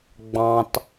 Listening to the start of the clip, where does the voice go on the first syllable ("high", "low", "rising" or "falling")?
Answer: high